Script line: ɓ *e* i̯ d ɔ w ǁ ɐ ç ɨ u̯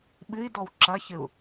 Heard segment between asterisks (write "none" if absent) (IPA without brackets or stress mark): ɨ